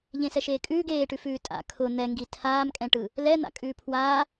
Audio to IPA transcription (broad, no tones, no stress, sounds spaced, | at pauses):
ʎ ẽ s ɛ ʃ eː kʼ ʉː ɡ eː ʈ ʉ f ʉː tʼ a̰ kʰ ʊ n̪ ɛ ŋ ɡ i tʰ aː m kʼ ɛ̃ ʈ ɯ | l ɛ n̪ a̰ kʼ ʉː pʰ w aː